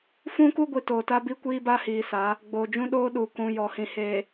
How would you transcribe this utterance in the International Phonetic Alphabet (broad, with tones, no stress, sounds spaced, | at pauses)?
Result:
f ũ˦ k u˦ ɡʷ i˨ t oː˨ t a˦ b i˦ kʷ iː˦ b a˦ h iː˨ s a˨˦ | ɡ͡b oː˨ d͡ʒ ũ˦ ɗ oː˦ ɗ u˨ k ũ˨ j ɔ˨ h ĩ˨ h eː˨